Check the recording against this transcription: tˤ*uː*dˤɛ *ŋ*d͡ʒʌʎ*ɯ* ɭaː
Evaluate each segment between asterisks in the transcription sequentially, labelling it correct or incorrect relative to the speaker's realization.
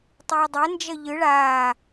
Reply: correct, incorrect, correct

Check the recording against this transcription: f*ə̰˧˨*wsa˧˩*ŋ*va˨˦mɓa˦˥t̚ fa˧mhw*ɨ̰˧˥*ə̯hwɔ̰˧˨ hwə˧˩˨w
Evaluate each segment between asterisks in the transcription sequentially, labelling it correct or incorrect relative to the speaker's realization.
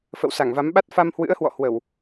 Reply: correct, correct, correct

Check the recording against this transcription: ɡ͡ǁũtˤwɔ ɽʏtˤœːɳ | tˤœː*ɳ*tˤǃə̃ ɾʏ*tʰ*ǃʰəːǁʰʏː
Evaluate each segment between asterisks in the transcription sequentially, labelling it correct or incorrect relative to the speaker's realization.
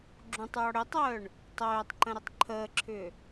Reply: incorrect, incorrect

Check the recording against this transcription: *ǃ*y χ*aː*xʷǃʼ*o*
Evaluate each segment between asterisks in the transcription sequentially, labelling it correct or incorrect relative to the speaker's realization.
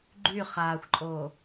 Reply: incorrect, correct, incorrect

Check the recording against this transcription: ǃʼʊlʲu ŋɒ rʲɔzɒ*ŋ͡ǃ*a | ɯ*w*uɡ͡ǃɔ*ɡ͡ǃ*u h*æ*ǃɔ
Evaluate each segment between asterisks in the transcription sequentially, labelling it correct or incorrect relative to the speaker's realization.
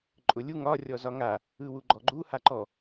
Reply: incorrect, correct, correct, incorrect

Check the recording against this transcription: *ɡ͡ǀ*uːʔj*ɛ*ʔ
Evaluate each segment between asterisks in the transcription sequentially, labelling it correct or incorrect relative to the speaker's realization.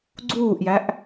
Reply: correct, incorrect

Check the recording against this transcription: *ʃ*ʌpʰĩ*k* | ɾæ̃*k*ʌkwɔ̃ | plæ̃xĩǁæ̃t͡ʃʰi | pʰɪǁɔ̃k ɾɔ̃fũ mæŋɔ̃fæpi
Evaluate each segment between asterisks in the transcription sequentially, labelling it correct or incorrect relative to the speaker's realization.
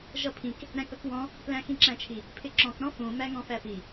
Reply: incorrect, correct, correct

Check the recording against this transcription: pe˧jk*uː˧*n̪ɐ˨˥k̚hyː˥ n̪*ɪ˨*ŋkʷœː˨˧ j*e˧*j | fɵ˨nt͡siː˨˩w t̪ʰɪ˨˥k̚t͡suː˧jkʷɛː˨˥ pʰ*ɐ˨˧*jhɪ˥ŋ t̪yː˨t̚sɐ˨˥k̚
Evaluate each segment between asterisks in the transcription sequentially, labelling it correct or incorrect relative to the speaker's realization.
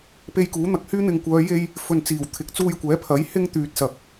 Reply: incorrect, correct, correct, incorrect

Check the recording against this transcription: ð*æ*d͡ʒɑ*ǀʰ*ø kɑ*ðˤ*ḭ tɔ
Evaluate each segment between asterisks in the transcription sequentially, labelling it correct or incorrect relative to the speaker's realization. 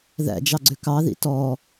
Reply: incorrect, incorrect, incorrect

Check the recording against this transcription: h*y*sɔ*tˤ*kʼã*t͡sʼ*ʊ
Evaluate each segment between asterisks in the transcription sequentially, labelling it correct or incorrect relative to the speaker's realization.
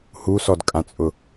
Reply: incorrect, incorrect, correct

